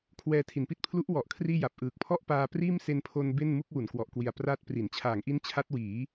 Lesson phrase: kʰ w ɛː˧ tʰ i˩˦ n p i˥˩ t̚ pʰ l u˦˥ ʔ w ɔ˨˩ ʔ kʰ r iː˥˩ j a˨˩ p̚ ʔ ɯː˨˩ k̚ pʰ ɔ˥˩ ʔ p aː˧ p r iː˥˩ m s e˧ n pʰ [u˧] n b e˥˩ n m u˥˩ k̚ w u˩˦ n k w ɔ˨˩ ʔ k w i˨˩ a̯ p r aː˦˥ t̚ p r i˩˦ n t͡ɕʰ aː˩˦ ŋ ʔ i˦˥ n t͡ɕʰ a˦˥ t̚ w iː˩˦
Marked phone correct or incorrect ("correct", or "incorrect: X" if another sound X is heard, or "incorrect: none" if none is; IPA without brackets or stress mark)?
incorrect: o˧